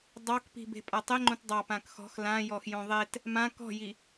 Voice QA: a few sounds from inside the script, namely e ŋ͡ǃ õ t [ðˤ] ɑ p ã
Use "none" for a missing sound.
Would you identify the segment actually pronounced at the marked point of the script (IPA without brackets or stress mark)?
dˤ